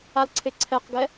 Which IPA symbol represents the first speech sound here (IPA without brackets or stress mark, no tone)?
a